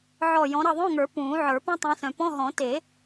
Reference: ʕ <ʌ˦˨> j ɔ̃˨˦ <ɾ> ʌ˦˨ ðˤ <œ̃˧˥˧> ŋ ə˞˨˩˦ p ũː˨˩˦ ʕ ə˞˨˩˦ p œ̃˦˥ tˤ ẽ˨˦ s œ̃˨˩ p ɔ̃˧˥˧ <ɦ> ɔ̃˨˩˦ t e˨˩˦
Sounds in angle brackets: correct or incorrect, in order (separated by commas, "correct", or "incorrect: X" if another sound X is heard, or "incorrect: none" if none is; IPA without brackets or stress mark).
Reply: incorrect: ɔ˦˨, correct, correct, correct